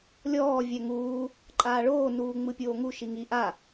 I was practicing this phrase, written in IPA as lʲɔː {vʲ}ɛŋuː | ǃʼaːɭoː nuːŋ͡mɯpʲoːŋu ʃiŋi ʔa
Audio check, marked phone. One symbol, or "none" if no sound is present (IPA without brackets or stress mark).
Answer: vʲ